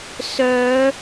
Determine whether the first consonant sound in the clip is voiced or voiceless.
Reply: voiceless